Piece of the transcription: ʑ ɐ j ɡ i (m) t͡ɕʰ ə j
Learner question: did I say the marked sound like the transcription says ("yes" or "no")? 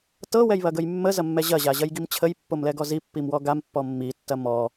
yes